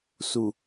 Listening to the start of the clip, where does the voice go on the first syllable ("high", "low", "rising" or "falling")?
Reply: low